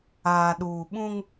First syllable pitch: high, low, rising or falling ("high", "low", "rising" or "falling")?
low